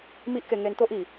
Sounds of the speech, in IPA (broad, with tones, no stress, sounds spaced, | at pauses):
m i˦ ʔ k e˧ ŋ e˧ n t̪ o˦ ʔ i˨˩